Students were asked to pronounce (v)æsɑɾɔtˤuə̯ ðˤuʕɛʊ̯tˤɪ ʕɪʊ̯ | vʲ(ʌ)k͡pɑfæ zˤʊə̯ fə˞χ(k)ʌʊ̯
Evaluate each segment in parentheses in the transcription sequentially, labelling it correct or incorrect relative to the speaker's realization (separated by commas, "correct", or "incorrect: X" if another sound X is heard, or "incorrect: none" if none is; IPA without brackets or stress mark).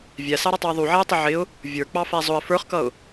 incorrect: vʲ, incorrect: ə˞, correct